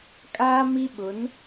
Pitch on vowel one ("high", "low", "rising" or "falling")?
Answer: high